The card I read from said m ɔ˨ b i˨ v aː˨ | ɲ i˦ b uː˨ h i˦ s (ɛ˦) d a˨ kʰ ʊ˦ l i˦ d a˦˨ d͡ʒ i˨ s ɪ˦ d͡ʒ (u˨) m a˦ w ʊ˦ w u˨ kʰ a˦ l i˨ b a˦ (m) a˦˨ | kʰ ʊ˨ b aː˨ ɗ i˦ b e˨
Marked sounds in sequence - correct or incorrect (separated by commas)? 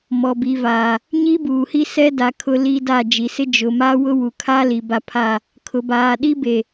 correct, incorrect, incorrect